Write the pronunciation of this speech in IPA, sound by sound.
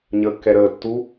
ɲ əː kː ɛ ɾ əː tː u

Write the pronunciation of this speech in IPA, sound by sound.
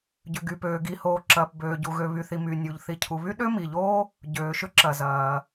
ɟ ʏ˩ ɡ y˩ p øː˩ ɡ i˩ h oː˩ ǁ ɐː˩ p b øː˩ ɟ u˩ ɣ ø˩ β y˩ θ i˩ m y˩ nʲ u˩ ʎ θ i˩ cʰ u˩ β y˥ ɗ ø˥ m i˩ ʎ oː˥ | ɟ øː˩ ʃ ʏ˥ ǁ ɐ˩ z ɐː˩

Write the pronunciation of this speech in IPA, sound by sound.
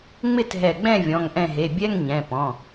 ŋ͡m ɪ˥˧ t ɦ ɛ˧˩ ɡ͡b ɛ̃˥˧ vʲ ɔ̃˩˧˩ ŋ ʔ ɛ̃˧˩ ɦ e˩˧˩ bʲ ɛ˧˥˧ ŋ ɲ ɛ̃˩˧˩ p ɔ̃˩˧˩

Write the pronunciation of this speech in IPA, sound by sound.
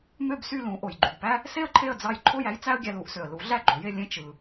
m ø˥˩ b s y˥˩ l ũ˩˥ ʔ o˩ j ɡ͡ǃ y˩ b p æ˥ | s e˥ ə̯ ǃʰ e˥˩ ə̯ d͡z ɑ˧ j ǃʰ o˥˩ j æ˥ j t͡s æ˥ ə̯ ɡʲ æ˧ l u˩˥ ʔ s ø˩ ə̯ l u˩˥ ɮ æ˥˩ ɡ͡ǃ o˩˥ j e˧ lʲ ẽ˥ t͡ʃ ɯ˩

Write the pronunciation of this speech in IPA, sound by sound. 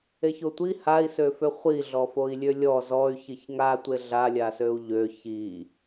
e ç o tʷ i h a i̯ s ø f ø χʷ i ɮ ɔ f o i̯ lʲ ø lʲ ɔ z ɔ y̯ ç i ç ŋ a tʷ e ɮ a lʲ a s ø u̯ ʎ ø ç i

